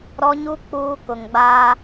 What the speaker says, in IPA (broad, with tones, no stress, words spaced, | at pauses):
ɾɔ˦ɲu˦ k͡puː˦kʊ˨ŋɡ͡baː˦